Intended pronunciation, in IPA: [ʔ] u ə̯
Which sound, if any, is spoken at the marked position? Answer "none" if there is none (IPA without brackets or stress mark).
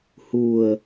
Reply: h